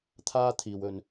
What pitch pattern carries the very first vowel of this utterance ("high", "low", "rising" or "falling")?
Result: high